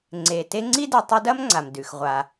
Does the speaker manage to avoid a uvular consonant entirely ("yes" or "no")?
no